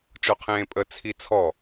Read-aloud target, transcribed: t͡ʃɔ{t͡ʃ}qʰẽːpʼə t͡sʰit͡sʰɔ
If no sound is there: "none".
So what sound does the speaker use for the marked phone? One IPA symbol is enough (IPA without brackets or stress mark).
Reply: none